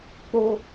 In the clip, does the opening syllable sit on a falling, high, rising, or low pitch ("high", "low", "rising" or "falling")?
high